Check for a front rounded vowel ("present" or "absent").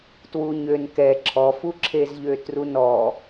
present